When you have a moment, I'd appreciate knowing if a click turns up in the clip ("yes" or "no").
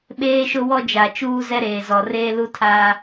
no